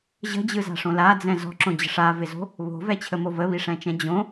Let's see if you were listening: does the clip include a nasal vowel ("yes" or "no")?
yes